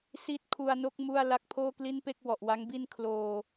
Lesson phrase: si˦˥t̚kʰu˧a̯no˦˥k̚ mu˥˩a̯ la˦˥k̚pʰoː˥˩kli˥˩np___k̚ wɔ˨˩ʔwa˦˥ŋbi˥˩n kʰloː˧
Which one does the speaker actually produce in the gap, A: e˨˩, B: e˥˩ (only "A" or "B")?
B